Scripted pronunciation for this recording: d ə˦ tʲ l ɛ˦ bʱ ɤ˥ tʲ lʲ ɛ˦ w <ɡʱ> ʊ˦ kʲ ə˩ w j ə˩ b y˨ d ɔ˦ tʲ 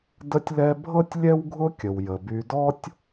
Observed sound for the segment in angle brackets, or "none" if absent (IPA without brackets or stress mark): ɡʱ